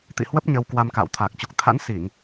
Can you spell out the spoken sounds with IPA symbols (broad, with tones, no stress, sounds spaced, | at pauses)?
t̪ ḭ˧˨ h w ə˦˥ p̚ ɲ ə˧ w k w a˧ m k a̰ː˧˨ w t̪ʰ aː˨˩ k̚ t͡ɕ u˨˩ k̚ t̪ʰ a̰˧˥ n s i˧˩˨ ŋ